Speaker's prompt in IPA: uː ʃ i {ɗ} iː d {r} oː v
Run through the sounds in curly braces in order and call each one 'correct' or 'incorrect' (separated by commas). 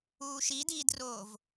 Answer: incorrect, correct